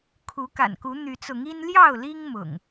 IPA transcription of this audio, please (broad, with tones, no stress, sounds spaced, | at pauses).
kʰ u˨˦ k a̰˨˩ n k u˨˦ n̪ y˨˦ t͡s ʊ˨˦ ŋ i˦ n l j ɑ˥˨ ʊ̯ l i˦ ŋ m ʊ̰˨˩ ŋ